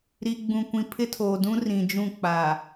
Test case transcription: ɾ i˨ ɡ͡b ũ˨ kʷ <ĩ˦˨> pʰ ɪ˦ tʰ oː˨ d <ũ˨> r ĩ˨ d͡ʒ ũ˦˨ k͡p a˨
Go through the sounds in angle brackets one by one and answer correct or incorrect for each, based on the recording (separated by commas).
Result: incorrect, incorrect